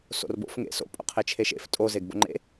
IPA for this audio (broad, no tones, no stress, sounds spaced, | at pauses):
s o̰ r b o̰ f ŋ ḛ s o̰ pʼ o̰ qʰ e t͡ʃʰ e ʃ ḛ f tʼ o z e ɡ b o̰ ŋ͡ǃ ḛ